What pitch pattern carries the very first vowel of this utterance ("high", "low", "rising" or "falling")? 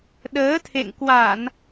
rising